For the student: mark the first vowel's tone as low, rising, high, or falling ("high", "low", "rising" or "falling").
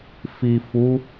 low